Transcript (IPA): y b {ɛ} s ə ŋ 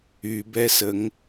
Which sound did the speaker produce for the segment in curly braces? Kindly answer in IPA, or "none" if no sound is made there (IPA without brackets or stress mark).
ɛ